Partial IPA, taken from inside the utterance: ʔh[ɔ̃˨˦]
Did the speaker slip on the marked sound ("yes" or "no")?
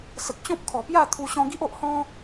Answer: yes